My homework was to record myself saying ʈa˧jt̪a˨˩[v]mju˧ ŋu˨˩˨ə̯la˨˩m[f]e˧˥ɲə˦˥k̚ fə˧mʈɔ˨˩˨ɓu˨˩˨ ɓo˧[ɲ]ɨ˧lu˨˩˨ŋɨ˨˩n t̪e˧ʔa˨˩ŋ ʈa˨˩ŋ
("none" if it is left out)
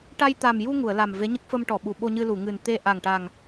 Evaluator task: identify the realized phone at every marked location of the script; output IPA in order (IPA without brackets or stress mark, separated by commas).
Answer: none, v, ɲ